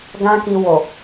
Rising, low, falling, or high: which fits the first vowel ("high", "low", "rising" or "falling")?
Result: high